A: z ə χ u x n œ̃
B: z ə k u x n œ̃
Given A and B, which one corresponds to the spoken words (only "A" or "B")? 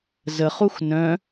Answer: A